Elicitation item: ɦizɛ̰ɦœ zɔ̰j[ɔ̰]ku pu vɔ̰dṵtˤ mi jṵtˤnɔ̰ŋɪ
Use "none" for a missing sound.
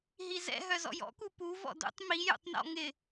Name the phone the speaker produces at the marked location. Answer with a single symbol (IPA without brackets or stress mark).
ɔ̰